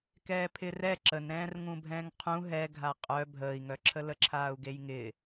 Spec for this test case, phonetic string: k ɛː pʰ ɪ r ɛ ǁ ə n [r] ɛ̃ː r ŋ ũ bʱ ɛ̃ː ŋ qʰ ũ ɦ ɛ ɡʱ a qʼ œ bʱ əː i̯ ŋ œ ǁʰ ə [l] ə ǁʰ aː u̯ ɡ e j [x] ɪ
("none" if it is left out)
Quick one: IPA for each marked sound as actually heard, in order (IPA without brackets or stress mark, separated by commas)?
ɾ, l, ŋ